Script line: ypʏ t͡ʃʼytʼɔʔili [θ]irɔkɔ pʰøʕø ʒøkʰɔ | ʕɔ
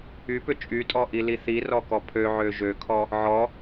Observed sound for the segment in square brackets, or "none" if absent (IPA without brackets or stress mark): θ